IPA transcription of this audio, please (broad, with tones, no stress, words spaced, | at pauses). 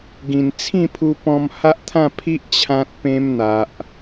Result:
ɡĩ˨˩n t͡sʰĩ˥˧pʰu˧pɔ̃˧m ha˦ʔt̪ʰã˥˧pʰi˦ʔ t͡ɕʰã˦t̚pẽ˦mn̪a˨ʔ